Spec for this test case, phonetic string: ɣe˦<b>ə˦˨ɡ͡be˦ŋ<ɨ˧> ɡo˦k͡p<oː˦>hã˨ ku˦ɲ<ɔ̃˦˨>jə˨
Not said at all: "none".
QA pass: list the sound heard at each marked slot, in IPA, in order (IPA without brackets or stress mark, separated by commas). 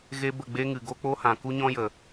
b, ɨ˨, o˦, ɔ̃˦